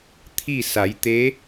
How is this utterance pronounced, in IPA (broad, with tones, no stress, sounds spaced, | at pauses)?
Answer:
t̪ʰ i˥˨ s a˩˧ j t̪ e˧˥